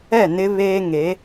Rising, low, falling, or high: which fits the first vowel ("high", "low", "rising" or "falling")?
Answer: falling